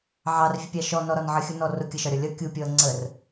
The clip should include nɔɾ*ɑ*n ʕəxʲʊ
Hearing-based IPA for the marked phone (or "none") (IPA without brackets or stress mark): ɒ